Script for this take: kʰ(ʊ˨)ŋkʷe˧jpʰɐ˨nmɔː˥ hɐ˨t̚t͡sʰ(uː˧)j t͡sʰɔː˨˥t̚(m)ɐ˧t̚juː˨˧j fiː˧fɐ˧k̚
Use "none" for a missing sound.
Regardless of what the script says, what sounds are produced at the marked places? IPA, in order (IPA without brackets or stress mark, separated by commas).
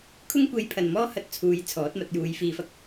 ʊ˥, uː˨˧, m